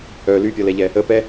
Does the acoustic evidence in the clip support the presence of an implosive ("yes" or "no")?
no